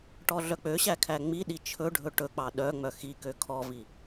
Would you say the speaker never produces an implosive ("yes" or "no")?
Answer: no